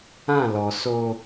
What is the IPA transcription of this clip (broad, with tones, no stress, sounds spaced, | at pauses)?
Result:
ã˦˨ l ɔ˨ s o˦